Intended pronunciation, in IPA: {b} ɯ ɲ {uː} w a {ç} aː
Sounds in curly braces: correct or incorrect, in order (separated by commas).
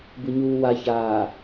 correct, correct, correct